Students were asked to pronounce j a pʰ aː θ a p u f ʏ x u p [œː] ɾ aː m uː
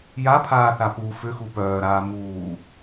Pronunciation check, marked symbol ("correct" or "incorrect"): correct